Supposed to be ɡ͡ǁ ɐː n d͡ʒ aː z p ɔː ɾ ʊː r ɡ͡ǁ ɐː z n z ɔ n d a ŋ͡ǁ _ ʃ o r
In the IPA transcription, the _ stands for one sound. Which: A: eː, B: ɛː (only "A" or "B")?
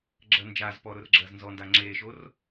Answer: A